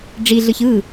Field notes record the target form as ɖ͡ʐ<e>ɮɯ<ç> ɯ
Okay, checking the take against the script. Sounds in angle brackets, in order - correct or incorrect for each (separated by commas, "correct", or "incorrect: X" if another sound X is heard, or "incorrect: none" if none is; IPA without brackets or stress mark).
incorrect: i, correct